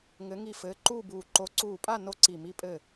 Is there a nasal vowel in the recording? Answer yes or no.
no